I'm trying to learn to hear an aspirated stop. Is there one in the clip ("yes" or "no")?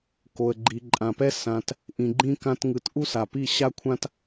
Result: yes